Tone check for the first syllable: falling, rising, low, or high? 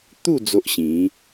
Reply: falling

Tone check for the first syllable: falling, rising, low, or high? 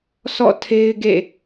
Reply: falling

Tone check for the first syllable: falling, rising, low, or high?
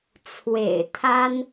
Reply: low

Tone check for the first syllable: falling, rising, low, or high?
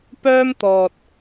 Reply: high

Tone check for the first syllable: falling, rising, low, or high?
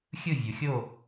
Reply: falling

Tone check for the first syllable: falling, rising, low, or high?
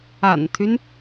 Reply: low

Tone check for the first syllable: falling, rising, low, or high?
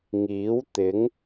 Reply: rising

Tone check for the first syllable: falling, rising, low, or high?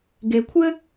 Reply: low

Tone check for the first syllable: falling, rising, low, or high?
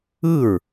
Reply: falling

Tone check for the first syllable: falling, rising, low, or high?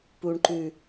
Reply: low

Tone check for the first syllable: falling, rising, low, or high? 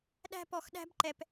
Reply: high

